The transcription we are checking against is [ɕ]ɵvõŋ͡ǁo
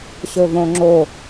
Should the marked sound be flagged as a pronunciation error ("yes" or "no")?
no